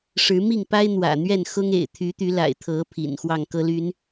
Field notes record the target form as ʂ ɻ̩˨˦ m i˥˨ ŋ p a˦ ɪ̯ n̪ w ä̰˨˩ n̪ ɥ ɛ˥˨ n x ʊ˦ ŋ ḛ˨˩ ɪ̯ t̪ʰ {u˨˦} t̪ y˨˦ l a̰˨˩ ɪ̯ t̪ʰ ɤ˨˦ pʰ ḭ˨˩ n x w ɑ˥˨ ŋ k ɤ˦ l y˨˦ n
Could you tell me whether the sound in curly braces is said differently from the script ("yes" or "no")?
yes